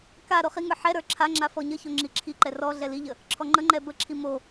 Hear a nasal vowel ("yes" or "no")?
no